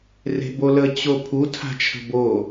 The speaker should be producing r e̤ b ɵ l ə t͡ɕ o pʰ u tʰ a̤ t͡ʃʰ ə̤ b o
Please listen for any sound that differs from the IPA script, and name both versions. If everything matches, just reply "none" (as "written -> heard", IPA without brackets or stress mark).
ɵ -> o